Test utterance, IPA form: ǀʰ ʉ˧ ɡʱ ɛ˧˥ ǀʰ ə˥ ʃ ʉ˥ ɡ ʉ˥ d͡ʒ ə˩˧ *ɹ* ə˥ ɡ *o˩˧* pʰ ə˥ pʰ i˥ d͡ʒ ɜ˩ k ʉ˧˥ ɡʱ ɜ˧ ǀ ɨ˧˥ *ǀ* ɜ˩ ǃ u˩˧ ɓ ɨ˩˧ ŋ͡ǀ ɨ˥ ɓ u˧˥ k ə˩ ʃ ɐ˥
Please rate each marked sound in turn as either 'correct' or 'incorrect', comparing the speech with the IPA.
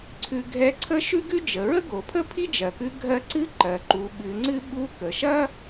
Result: correct, correct, incorrect

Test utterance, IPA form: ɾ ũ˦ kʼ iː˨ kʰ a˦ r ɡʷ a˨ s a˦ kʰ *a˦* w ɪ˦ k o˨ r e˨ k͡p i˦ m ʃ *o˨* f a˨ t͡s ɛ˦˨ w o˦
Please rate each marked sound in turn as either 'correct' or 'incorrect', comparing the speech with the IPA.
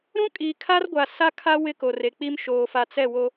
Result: correct, incorrect

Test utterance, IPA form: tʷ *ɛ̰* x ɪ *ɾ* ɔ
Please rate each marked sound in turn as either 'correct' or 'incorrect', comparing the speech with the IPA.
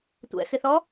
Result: correct, incorrect

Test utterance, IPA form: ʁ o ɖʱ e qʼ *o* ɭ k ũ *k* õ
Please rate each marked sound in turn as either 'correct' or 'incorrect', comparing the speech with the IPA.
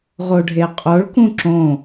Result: correct, incorrect

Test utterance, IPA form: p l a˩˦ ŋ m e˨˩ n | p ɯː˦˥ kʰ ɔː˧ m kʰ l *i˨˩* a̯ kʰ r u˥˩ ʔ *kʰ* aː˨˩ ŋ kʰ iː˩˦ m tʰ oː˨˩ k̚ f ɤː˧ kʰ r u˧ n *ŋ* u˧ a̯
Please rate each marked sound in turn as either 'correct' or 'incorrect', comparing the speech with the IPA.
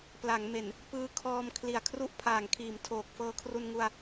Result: correct, incorrect, correct

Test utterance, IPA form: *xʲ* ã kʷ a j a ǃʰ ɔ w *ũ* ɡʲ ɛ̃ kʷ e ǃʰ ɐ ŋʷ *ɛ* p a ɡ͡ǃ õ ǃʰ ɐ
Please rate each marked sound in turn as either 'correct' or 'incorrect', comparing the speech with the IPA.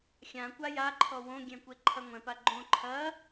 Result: correct, incorrect, incorrect

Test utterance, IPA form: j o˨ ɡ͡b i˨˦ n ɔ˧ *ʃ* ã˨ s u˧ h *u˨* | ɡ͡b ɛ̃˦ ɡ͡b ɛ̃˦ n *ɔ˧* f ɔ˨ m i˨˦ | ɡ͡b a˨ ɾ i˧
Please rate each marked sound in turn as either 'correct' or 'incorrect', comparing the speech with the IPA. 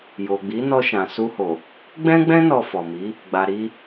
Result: correct, incorrect, correct

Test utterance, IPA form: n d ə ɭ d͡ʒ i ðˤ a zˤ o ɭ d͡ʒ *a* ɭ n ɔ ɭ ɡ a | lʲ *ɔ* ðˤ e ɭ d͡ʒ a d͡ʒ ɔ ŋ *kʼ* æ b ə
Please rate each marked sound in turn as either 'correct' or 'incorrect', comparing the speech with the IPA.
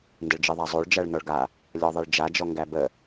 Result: incorrect, correct, incorrect

